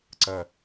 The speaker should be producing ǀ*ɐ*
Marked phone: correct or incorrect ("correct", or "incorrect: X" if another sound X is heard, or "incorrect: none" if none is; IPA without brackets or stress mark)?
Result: correct